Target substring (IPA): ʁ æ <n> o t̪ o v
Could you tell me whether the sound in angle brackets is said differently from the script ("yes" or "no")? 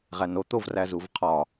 no